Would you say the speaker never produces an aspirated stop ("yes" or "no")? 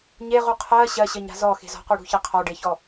no